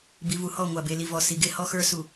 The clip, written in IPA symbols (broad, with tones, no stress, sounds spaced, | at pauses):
b i˨ v u˨ h ɔ˦˨ ŋʷ a˨ b e˨ l i˨ v ɔ˨ s i˨ ɡ e˦ h ɔ˦ x ə˞˦ s u˨